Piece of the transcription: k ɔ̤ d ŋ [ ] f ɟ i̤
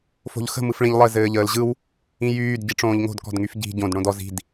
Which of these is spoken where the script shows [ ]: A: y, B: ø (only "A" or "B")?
A